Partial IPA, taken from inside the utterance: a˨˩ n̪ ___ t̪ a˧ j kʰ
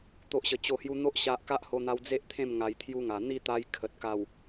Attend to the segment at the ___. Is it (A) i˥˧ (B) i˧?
A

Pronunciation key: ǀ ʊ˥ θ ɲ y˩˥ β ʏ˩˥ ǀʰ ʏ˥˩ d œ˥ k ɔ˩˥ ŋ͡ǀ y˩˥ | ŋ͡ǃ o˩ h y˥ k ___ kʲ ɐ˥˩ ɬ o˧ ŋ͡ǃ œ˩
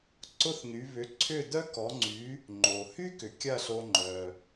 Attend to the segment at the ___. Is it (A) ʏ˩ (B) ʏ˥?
A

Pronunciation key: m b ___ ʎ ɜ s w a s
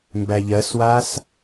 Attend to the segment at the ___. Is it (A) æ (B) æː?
A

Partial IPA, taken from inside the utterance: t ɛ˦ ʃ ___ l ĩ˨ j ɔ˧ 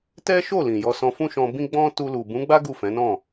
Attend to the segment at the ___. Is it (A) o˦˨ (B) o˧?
A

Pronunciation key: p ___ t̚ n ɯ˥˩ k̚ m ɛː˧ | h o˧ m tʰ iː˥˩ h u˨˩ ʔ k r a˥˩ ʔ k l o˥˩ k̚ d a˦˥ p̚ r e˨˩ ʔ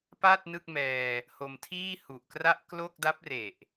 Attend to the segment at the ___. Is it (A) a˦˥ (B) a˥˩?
B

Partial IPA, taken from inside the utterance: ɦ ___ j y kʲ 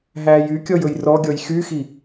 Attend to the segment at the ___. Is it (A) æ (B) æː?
B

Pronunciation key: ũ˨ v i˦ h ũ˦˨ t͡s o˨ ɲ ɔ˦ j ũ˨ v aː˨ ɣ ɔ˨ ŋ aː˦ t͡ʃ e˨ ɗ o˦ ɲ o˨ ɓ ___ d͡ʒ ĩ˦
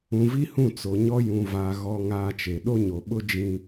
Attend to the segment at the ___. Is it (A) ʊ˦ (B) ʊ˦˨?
A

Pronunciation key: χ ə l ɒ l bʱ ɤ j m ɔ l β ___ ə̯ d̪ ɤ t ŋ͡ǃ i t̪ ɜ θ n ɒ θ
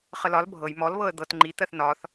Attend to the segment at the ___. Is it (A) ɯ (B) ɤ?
B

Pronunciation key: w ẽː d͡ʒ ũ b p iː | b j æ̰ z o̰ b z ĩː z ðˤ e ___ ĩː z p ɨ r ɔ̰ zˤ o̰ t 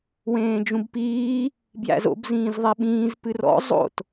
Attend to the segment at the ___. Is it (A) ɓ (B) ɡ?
A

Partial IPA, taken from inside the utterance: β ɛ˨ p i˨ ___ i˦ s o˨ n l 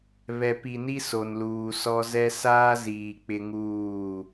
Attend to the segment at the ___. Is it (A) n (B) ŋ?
A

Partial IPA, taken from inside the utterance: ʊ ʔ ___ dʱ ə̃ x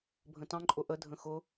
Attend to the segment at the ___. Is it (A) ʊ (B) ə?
B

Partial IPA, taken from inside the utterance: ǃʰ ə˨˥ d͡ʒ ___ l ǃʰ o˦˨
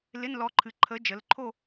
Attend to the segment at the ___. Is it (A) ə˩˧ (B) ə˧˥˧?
A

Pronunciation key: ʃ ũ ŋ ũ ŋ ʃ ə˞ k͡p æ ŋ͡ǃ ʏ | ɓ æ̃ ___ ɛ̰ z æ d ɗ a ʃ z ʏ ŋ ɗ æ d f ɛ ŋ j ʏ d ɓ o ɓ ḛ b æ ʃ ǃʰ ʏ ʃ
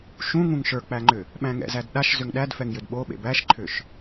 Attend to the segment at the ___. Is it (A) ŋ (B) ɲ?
A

